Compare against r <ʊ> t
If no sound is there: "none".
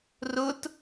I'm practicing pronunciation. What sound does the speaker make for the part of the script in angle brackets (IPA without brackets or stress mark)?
ʊ